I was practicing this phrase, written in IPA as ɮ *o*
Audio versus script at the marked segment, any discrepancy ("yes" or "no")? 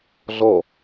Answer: yes